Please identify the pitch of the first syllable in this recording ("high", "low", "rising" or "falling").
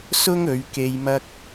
high